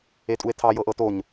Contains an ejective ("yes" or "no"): yes